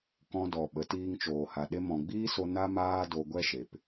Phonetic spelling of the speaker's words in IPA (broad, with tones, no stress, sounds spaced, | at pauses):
k ɔ̃˧ d ɔ˨ ɓ ə˨˦ t iː˧ ŋ t͡ʃ oː˨ h a˨ ɗ e˧ m ɔ̃˨ ɡ͡b iː˦ s o˧ n a˧ m aː˧ d o˧ ɡʷ ɛ˦ ʃ e˨ p